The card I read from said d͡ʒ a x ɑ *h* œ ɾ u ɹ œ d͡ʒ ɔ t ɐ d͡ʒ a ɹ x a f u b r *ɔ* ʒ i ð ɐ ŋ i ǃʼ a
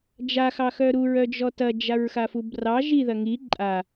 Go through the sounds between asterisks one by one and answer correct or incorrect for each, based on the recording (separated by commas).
incorrect, incorrect